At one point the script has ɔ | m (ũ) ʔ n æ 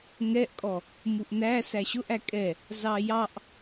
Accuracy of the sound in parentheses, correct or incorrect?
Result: incorrect